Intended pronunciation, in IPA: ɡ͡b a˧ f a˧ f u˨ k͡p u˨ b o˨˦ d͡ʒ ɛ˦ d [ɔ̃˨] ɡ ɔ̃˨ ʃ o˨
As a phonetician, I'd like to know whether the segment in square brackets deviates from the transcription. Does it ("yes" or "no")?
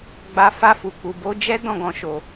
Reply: yes